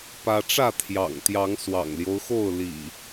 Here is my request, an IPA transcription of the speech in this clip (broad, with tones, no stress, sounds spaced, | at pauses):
p ä˦ ʈ͡ʂ ä˥˨ t̪ʰ j ɑ̰˨˩ ŋ t̪ j ɑ˨˦ ŋ s w ɑ̰˨˩ ŋ l j o˦ ʊ̯ x o˥˨ ʊ̯ l ḭ˨˩